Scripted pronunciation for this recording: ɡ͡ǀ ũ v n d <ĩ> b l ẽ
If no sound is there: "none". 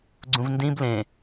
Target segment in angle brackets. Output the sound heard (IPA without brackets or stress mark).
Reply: ĩ